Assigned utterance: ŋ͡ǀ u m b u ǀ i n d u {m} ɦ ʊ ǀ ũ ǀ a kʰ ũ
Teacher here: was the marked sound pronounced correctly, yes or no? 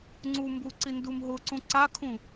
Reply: yes